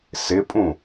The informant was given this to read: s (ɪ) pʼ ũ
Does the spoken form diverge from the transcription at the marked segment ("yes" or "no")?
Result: no